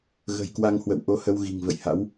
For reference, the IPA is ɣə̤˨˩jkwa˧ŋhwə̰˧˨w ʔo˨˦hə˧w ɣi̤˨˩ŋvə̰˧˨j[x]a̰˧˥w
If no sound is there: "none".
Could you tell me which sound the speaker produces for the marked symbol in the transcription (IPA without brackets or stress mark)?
h